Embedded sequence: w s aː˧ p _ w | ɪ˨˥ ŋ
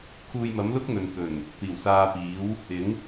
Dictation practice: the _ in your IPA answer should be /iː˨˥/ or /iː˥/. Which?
iː˨˥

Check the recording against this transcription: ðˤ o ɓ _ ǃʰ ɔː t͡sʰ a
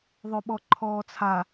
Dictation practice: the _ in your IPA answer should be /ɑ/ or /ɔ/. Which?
ɔ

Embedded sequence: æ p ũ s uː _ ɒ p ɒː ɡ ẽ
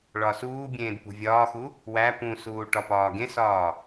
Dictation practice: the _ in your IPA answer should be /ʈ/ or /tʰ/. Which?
ʈ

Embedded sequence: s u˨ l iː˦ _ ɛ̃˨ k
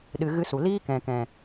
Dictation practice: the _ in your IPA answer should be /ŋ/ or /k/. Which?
k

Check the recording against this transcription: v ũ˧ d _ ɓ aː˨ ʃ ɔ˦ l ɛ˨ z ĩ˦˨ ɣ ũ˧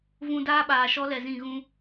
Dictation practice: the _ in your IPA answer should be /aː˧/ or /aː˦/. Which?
aː˦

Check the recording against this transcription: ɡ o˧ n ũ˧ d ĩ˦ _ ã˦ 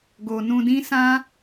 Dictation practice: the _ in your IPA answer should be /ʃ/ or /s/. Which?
s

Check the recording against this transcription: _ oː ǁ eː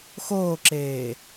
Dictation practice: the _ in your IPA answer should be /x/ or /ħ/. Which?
x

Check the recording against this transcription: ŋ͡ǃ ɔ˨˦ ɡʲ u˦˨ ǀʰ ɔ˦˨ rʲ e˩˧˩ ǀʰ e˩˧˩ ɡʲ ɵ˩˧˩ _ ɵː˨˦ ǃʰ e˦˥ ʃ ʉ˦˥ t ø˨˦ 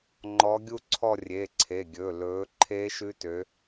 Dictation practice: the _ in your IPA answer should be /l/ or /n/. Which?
l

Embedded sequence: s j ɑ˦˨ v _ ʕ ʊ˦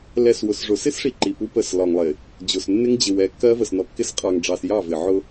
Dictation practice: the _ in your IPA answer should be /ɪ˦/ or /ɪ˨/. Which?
ɪ˨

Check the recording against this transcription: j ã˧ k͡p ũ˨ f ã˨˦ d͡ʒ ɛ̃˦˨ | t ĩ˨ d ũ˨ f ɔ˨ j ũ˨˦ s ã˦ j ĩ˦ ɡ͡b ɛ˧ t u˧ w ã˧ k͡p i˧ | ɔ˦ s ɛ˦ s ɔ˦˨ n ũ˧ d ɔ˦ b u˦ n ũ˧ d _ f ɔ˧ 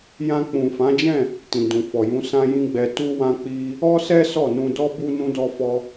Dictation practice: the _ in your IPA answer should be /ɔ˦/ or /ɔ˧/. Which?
ɔ˧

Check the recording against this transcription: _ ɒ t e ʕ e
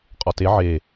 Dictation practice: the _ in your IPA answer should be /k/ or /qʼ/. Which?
qʼ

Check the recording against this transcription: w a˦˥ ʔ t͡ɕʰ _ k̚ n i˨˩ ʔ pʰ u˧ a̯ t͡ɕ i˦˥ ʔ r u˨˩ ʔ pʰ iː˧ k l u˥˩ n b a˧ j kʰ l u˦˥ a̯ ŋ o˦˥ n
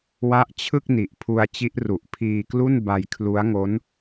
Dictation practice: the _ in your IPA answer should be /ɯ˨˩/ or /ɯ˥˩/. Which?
ɯ˥˩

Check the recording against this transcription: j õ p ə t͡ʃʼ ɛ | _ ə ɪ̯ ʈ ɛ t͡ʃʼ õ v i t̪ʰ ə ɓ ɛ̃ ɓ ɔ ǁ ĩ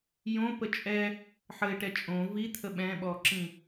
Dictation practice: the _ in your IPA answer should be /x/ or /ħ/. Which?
ħ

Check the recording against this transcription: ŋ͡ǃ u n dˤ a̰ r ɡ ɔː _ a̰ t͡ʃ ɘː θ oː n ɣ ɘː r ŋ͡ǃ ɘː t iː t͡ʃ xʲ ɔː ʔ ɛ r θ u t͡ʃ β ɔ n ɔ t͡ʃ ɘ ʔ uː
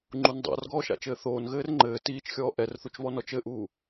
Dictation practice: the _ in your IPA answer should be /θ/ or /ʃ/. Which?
ʃ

